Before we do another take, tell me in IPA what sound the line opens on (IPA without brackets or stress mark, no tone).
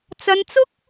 t͡s